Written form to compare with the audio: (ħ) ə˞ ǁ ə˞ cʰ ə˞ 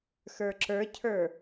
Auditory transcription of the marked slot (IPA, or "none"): x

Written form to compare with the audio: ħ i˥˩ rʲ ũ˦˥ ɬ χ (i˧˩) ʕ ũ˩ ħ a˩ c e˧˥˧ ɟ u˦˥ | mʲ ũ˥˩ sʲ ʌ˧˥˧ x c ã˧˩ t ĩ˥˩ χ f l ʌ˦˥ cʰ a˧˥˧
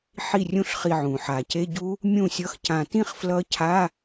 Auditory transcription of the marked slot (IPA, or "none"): i˧˩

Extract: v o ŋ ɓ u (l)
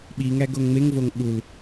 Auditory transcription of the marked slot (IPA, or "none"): l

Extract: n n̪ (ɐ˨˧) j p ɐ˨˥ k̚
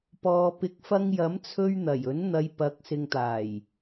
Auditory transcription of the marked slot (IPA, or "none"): ɐ˨˧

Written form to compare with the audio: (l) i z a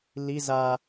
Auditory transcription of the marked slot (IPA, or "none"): l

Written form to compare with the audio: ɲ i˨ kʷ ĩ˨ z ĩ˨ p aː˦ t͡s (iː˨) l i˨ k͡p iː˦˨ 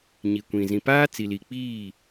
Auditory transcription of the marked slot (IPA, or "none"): i˨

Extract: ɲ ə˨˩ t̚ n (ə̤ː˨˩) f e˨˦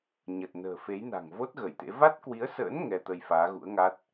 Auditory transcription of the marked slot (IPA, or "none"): ə̤ː˨˩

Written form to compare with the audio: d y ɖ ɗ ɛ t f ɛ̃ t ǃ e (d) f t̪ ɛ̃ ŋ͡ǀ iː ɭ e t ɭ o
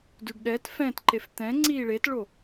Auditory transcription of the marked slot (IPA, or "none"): none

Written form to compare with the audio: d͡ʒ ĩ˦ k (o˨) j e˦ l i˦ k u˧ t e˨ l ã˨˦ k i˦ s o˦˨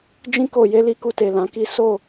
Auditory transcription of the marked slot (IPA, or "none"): o˧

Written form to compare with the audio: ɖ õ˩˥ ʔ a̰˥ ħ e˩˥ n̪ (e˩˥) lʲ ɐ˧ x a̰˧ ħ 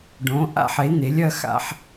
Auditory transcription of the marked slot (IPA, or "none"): e˩˥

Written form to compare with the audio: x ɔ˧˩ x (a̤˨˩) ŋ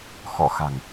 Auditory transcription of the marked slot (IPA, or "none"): a̤˨˩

